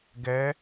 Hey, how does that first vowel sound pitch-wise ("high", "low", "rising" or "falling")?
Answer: rising